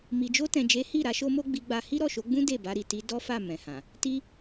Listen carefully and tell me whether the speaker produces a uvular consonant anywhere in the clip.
no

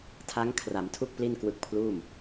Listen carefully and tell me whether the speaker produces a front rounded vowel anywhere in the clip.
no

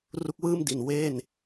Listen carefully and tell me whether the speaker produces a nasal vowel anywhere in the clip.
no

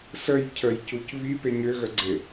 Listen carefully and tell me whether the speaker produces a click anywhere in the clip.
yes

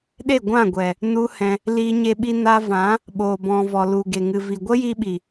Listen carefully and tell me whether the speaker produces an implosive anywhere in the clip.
yes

